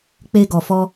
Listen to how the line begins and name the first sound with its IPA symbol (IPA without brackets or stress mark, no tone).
k͡p